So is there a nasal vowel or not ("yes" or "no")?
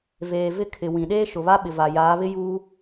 yes